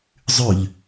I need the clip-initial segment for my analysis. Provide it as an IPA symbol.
zˤ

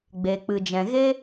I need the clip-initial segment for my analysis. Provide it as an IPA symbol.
ɡ͡b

